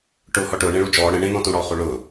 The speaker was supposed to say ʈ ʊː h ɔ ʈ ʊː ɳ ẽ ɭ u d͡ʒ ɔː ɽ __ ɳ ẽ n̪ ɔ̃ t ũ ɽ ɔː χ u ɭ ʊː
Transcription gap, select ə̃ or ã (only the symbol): ə̃